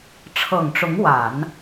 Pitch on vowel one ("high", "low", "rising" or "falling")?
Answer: low